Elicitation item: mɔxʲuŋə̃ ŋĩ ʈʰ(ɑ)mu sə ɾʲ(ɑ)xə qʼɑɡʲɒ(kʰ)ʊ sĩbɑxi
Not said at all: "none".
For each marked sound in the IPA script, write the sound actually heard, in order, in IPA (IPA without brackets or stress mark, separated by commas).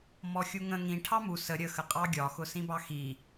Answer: ɑ, ə, x